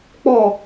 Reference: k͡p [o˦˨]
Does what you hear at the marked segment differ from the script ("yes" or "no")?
yes